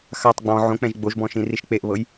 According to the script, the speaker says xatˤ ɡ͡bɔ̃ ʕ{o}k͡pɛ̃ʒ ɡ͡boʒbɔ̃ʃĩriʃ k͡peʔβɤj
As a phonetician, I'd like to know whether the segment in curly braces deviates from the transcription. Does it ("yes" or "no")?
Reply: yes